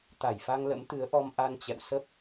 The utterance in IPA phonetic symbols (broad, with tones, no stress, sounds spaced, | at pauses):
t̪ a˧˩ j f a˧ ŋ l ə̰˧˥ m t̪ ɨ˨˦ ə̯ ʔ ɔ˧ m ʔ a˧ n t͡ɕ ɛ̰˧˨ w s ə˦˥ p̚